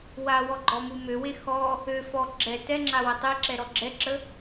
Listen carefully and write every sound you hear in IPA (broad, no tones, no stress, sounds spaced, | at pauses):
w a w ɔ ɡ͡ǃ ɔ m u m ø w e x ɔ | ø f ɔ ɡ͡ǁ ɛ t ɛ ŋ͡ǁ a w ə tˤ e ǁ ɛ ɾ ɔ ɡ͡ǁ ɛ ǁ ə